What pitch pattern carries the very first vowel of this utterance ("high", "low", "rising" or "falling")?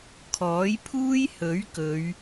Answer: rising